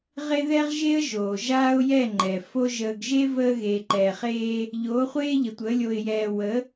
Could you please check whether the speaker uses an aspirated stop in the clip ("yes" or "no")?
no